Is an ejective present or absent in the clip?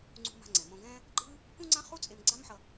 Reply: present